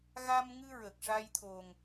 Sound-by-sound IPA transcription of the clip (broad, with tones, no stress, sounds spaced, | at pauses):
ɣ a˧ m ŋ ɨ˧ ɹ ə˨˩ k̚ ʂ a˧ j t̪ʰ o˨˩ ŋ